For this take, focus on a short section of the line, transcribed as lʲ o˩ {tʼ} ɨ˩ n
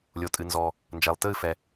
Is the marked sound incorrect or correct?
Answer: correct